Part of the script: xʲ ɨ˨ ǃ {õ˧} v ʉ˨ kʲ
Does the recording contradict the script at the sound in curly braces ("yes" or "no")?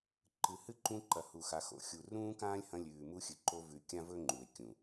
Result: yes